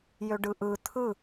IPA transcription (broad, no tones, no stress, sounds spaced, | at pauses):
j ø ɖ ɯ ʔ ɯ t̪ʰ ɯ